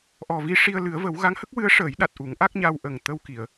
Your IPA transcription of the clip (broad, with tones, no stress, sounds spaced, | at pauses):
ʔ ɔ˨˩ v i˧ ʂ i˧ ə̯ l ɨ˨˩˦ ə̯ v ə˨˩˦ w ɣ a˧˥ ŋ h ə˦˥ k̚ w ɨ˧˥ ə̯ ʂ əː˨˩˦ j ɗ a˨˩ t̚ ʔ u˨˩˦ ŋ ʔ a˦˥ k̚ ɲ a˧ w ʔ ə˨˩ ŋ t̪ ə˧ w k i˨˩˨ ə̯